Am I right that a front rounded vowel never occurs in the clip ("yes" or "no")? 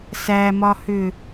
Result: no